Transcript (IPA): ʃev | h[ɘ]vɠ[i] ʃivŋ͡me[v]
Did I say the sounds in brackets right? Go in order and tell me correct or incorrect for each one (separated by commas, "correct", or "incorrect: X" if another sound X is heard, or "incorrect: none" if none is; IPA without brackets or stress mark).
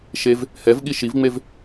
incorrect: ɛ, correct, correct